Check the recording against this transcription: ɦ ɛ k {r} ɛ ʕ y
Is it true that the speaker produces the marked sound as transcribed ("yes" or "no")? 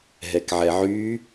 no